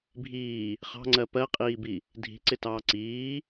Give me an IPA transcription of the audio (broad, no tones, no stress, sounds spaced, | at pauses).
bʱ iː | χ ɑ̤ ŋ͡ǀ ɜ p ɜ qʼ iː b i | dʱ i̤ ǀ ɪ t ɑː ǀ iː